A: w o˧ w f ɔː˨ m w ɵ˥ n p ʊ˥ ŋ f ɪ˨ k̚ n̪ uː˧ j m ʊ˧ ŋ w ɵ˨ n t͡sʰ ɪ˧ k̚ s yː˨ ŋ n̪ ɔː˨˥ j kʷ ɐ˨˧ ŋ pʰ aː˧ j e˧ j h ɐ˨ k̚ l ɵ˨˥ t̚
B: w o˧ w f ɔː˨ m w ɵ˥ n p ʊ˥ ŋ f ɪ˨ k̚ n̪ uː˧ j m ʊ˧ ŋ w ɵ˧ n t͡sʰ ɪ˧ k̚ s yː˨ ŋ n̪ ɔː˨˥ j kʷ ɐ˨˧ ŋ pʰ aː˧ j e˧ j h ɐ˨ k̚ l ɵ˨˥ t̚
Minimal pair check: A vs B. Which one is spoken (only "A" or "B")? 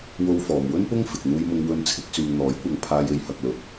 B